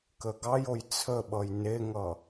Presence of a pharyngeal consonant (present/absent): absent